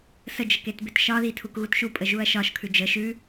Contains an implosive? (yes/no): no